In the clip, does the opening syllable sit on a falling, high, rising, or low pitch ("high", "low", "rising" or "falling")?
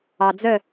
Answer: low